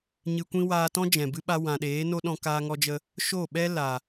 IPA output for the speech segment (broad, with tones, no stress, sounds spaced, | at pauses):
ɲ ɨ˧ kʷ ĩ˦ w aː˧ t ɔ̃˦ d͡ʒ ɛ̃˨ b ɨ˧ ɓ a˧ w ã˨ ɗ eː˨˦ n o˦ ɗ ɔ̃˧ k aː˧ ŋ ɔ˧ d͡ʒ ə˧ | ʃ o˦˨ ɓ ɛ˦ l a˨